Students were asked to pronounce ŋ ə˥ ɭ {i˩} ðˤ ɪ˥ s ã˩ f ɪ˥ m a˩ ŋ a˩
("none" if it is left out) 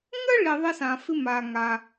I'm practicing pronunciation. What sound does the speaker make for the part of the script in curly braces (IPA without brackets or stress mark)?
i˩